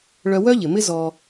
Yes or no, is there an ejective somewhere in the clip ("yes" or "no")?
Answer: no